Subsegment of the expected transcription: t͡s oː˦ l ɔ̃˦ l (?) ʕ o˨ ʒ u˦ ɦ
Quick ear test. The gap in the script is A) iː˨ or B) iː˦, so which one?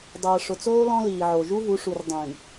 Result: A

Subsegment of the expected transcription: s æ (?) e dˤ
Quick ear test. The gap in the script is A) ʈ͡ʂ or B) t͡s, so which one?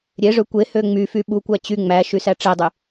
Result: A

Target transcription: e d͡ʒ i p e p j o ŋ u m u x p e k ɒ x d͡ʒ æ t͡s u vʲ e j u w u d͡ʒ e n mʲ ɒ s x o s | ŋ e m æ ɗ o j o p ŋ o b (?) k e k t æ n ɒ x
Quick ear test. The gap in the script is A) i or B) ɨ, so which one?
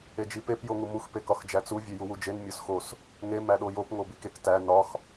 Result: A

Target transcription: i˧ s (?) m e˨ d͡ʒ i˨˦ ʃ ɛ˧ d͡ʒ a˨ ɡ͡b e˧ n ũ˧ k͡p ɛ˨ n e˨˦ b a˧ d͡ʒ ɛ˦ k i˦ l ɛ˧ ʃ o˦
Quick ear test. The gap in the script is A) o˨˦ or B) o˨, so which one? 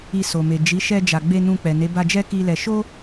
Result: B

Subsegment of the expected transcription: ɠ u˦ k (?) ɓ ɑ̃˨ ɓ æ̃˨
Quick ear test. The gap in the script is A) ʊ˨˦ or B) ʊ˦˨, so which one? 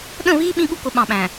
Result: A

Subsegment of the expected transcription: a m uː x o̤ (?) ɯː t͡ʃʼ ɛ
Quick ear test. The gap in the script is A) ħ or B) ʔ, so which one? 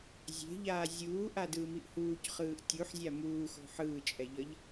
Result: A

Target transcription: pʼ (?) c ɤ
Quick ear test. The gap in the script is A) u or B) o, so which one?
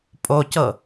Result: B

